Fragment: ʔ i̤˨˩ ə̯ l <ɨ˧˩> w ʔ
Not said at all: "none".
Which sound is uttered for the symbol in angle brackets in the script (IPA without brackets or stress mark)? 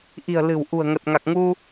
ɨ̤˨˩